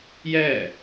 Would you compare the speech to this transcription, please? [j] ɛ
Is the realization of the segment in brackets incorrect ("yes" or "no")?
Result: no